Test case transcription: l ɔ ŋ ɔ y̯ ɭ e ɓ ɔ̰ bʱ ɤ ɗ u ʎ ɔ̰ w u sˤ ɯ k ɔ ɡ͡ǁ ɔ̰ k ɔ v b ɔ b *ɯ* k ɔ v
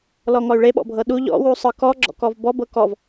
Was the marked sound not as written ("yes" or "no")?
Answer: yes